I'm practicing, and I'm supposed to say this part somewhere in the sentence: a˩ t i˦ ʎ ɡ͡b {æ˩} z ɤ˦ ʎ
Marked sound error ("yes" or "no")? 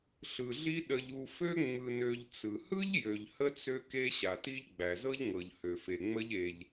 no